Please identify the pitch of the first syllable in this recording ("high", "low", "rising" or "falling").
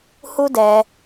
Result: high